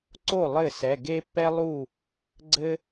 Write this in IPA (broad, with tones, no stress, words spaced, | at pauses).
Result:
ǀo˥˩ lˠɘ˥˩sɛ˩˧˩ ɡe˥pːɛ˥lˠu˥˩ | ɡ͡ǀɘ˥